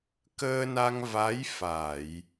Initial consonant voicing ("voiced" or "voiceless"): voiceless